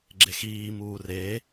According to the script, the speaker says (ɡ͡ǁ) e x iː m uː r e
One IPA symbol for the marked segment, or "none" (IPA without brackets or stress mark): ɡ͡ǁ